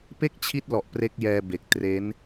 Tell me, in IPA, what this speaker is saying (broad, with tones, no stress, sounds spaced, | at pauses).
p e˥˩ k̚ t͡ɕʰ i˦˥ t̚ l ɔ˨˩ ʔ p r e˦˥ k̚ j ɛː˧ b e˨˩ k̚ t r e˦˥ n